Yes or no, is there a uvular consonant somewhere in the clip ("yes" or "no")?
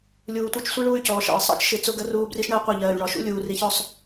yes